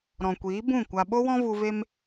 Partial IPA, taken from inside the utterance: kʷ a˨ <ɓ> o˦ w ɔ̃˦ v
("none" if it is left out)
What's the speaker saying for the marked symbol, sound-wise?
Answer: ɓ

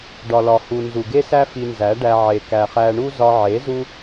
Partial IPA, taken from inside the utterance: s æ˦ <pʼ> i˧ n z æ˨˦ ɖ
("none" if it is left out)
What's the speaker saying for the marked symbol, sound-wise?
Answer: f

